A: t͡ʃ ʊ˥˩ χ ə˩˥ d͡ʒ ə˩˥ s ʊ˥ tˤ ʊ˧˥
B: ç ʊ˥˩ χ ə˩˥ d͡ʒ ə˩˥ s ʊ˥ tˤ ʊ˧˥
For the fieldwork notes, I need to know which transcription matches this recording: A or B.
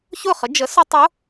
B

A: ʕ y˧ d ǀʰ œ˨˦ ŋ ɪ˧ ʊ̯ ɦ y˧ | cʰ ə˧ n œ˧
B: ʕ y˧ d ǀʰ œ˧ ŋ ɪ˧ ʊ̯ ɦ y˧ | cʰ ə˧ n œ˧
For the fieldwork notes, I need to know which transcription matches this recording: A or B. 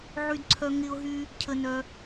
B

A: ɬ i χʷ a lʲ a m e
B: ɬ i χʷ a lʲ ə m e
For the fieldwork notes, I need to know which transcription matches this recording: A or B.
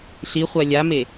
A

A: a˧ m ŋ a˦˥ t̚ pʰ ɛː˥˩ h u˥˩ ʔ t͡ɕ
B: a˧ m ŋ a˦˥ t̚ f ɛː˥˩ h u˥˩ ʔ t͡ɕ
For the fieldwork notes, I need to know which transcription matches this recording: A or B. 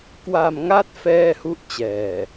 B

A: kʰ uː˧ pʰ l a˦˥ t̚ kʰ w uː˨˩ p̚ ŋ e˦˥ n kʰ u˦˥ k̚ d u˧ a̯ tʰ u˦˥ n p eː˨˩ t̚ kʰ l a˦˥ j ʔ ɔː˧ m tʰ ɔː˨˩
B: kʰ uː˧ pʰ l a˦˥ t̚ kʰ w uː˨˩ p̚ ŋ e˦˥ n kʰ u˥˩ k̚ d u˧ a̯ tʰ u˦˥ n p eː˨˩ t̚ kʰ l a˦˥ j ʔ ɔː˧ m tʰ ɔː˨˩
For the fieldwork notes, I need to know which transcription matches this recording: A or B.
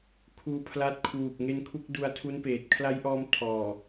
A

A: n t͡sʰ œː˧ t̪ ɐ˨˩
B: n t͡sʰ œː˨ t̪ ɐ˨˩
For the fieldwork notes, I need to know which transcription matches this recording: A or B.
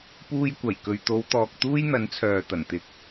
B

